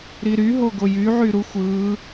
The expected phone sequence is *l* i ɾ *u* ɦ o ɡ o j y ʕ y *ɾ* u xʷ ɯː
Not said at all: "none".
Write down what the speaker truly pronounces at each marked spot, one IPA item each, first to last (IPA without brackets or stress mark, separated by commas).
ɾ, y, ɾ